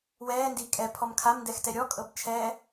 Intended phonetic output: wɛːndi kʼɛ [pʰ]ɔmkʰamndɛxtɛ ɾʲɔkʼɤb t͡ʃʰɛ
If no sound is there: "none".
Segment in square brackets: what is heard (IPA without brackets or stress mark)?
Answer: pʰ